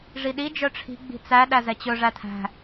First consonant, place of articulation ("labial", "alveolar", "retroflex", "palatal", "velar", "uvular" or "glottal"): retroflex